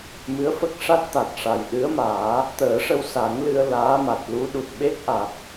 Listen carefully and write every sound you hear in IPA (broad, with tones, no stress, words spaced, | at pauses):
mɨ˧˥ə̯fə˦˥k̚ʂa˦˥t̚t̪a˨˩t̚ ʂa˨˩jɗɨ˧˥ə̯maː˨˩˦ | t̪əː˨˩˦ʂə˧w sa˨˩˦ŋlɨ˧ə̯ laː˧˥ma˨˩t̚lu˧˥ɗu˨˩t̚ ɓe˦˥k̚ʔa˨˩t̚